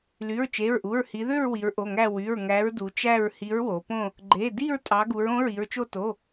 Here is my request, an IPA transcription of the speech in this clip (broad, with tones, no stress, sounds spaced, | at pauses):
l y˩˧˩ ɹ t͡ʃ e˩˧˩ ɹ ʔ u˩˧˩ ɹ h i˩˧ ð ø˥˧ ɹ w i˩˧ ɹ ʔ o˩˧˩ ŋ æ˥˧ w y˩˧˩ ɹ ŋ æ˧˥ ɹ d u˩˧ t͡ʃ æ˥˧ ɹ h i˧˥ ɹ w o˩˧ p õ˥˧ | ɡ͡ǃ e˩˧˩ d i˥˧ ɹ tʼ ɑ˩˧ ɡ u˩˧ ɹ õ˧˥ ɹ i˩˧ ɹ t͡ʃ o˥˧ t o˩˧˩